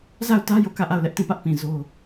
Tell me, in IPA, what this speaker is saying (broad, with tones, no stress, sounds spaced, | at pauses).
z a˦˨ ʊ̯ t ä˦ j o˦˨ k ä˦˨ ʔ a˦˨ ʊ̯ l ɛ˦ ʔ t ĩ˦˨ p ä˦ ʔ p ĩ˨ z o˦